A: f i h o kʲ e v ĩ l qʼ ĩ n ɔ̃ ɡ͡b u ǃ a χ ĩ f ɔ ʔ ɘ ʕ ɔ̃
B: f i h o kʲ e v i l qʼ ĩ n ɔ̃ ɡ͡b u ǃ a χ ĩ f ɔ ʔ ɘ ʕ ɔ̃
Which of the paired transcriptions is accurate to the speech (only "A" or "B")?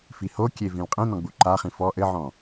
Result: A